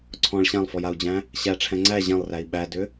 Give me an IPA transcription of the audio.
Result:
ǀʰ ɔ̃ ɭ ɕ ã lˠ f ɔ j a u̯ d͡ʑ æ̃ | ɕ æ ʈ͡ʂʰ ɛ̃ ŋ͡ǀ æ ʑ ɛ̃ lˠ r æ i̯ ɓ æ d ʏ

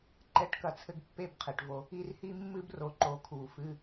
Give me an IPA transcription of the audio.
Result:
ǃ ɛ˨˦ ʈ k ɐ˨ t͡sʰ ɘ˧ ɡ pː e˦˨ b qʰ e˨ ʈ v o˧ | i˧ r h i˦ mː ɨ˦ b r o˨ ǃ o˨ kʰ u˨ f ɨ˧

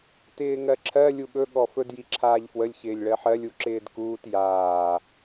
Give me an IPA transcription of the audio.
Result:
t ɪː ŋ ɜ ǁʰ ɜ lʲ u ɠ ɵ ɠ ɔ f ɵ d j i ǁʰ aː ʎ f w ə lʲ ç ɪː lʲ ɭ ɜ ħ ɜ lʲ u ǁ ɪː d k uː t j aː

